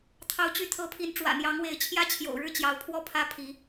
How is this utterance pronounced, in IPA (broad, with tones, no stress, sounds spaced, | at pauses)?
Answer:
t̪ʰ ɑ˨˦ ʊ̯ t͡ɕ y˨˦ t̪ʰ ɤ˨˦ pʰ i˨˦ n ʈ͡ʂ w ä̰˨˩ n̪ j ɑ˨˦ ŋ w e˨˦ ɪ̯ t͡ɕʰ j ä˦ t͡ɕʰ j o̰˨˩ ʊ̯ ɻ ɻ̩˥˨ t͡ɕ j ɑ˨˦ ʊ̯ pʰ w ɔ˥˨ pʰ ä˦ pʰ i˨˦